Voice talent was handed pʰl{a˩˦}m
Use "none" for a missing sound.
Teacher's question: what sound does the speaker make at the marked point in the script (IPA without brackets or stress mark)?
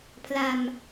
a˧